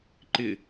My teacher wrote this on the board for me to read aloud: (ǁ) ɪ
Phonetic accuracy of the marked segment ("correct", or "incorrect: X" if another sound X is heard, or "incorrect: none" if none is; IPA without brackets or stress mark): incorrect: ǃ